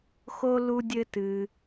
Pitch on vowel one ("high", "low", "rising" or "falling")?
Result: high